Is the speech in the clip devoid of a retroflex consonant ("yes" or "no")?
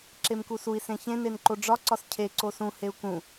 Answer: no